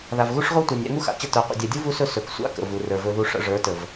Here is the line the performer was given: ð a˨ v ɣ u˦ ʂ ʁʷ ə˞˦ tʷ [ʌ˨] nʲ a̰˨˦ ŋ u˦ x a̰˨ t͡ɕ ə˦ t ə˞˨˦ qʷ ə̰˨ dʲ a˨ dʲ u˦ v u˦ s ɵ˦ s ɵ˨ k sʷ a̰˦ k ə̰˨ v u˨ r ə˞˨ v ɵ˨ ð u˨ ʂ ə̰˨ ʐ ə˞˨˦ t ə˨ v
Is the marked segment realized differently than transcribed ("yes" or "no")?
yes